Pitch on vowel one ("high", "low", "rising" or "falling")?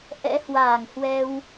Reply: rising